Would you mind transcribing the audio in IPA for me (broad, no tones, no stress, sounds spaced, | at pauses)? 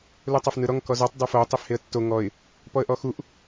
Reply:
l u tˤ a f n ɯ ɾ ɔ ŋ k ɔ z u tˤ dˤ ɛ f o tˤ e f h e ə̯ tː o ŋ ɔ ɪ̯ | p ɔ ə̯ ʔ ɔ x u ʔ